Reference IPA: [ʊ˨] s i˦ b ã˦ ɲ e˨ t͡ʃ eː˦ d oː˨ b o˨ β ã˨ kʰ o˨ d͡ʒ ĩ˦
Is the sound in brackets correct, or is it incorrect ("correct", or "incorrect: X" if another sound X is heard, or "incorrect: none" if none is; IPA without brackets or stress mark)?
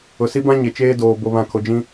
correct